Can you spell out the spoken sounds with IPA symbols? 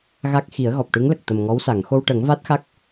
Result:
ɣa˦˥k̚ xi˨˩˦ə̯ɣɔ˨˩p̚ʈɨ˧˥ŋlə˨˩k̚ t̪ə˨˩mŋɔ˧˥wsa˨˩˨ŋ xo˧wʈə˨˩˦ŋva˦˥t̚xa˦˥k̚

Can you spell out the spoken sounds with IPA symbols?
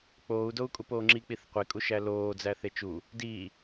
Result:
k͡poːu̯ dou̯kʼupoːŋ͡ǁi k͡piθqʷe kʼuʃæloː d͡zæθet͡ʃu | diː

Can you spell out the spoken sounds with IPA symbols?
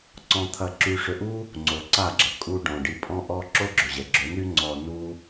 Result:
ǀɔ̃˧t̪ʰɐ˧ǁy˧ ʂʏ˧ʔu˦ | ŋ͡ǀo˨ǀa˦˨ɡ͡ǁə˨ kʼu˧ ɖɔ̃˨ɖi˧pʼɔ̃˦ʔɔ˦ ǁo˦ɡ͡ǁʏ˨ ʑɛ˨ ɡ͡ǁø˨˦ny˦ŋ͡ǀɔ˧ nu˦

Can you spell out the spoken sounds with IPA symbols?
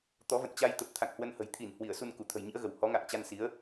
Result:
t̪ɔ˨˦və̰˧˨nt͡ɕa˧jt̪ə˨˩p̚ t̪ʰa̰˧˨ŋhwə˧nhə̤˨˩j t̪ʰi˧˩n hwi˧˩ə̯su˧n ku˧˩t̪ʰə̤˨˩jɲḭ˧˥ə̯ɣə˧˩w hɔ˨˦ŋa̰ː˧˨ŋ t͡ɕa˧nsi˨˦ə̯

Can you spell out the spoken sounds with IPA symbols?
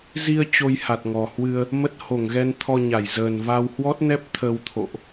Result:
zi˧ə̯ t͡ɕo˧jha˨˩t̚ŋɔ˨˩ hwɨ˧ə̯ | mə˦˥t̚ ho˧˩ŋɣɛ˧nt̪ʰɔ˧ ɲa˧˩jzəː˨˩nva˧w hwɔ˦˥t̚nɛ˦˥p̚ t̪ʰə˧wt̪ʰo̰˧˨ʔ

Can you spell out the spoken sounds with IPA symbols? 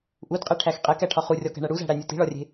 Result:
ʔudqʼeʈʰæx qʼekæʈʰɒ χurʲɒkæ̤ɳæ ɽuzæ̤ɽænʲu ti̤ɭɒrʲe̤

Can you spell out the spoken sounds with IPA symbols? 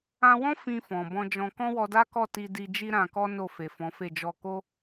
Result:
ã˧wɔ̃˦ fĩ˧fɔ̃˨ bɔ̃˧d͡ʒɔ̃˧ kɔ̃˦wɔ˧da˦kɔ˦˨ ti˧di˧ d͡ʒi˦ɾã˧kɔ˦ no˦˨fe˨fɔ̃˨˦fe˦˨ d͡ʒɔ˧ko˦

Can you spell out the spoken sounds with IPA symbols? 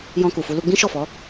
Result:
jɔ̃˧ku˨fu˧ lu˧ɡ͡bĩ˦ʃɔ˦˨fɔ˨˦

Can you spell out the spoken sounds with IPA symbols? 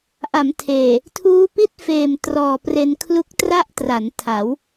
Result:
ʔa˩˦mtʰeː˨˩ | tʰuː˦˥pi˥˩t̚feː˨˩m trɔː˨˩pre˧n kʰlu˦˥k̚ tra˥˩ʔtra˩˦ntʰa˩˦w

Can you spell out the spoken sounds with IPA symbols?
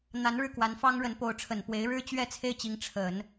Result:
n̪a˧˥nɻɻ̩˥˩ kwa˧˥nfɑ˥ŋɻə˧˥n po˧˥ʊ̯ ʈ͡ʂʰə˨˩npwe˧˥ɪ̯ɻɻ̩˥ t͡ɕɥɛ˥˧ t͡sʰe˥˩ɪ̯t͡ɕi˧˥ŋ ʈ͡ʂʰə˨˩˦n

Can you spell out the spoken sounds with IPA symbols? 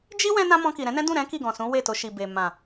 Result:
d͡ʒi˦ wɛ̃˦nã˦mɔ̃˧ki˨ ɾɛ̃˨˦nɛ̃˦ dũ˦˨ɾɛ̃˨˦ ki˦˨ɡɔ̃˨sũ˨˦ we˦˨to˧ʃi˨be˨ mã˨

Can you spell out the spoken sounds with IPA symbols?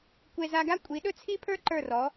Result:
kʷe˧ za˧ɡa˥ kʷʼi˩˥ɗɵ˥t͡sʰi˥pʰə˞˥ ǃə˞˥˩rɔ˩˥

